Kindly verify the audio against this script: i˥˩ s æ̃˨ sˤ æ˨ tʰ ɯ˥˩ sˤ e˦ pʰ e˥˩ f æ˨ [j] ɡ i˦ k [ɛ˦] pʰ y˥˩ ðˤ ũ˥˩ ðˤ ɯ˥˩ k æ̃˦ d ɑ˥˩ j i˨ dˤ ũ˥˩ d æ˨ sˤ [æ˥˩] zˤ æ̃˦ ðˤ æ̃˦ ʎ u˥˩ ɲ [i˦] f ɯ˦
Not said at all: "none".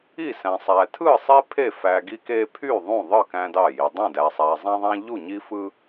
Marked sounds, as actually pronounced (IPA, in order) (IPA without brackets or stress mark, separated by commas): none, e˦, æ˨, i˦